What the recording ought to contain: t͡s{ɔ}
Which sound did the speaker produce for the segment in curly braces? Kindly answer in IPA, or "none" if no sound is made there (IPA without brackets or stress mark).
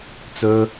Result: ɵ